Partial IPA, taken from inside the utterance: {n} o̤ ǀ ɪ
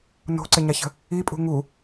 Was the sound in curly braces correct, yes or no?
yes